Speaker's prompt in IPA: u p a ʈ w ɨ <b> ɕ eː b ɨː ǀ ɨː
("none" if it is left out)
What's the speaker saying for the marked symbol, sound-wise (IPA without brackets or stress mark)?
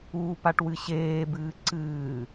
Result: none